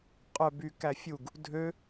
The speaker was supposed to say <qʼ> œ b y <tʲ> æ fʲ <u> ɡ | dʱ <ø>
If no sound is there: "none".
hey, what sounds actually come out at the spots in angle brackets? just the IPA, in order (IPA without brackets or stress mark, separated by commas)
qʼ, k, u, ø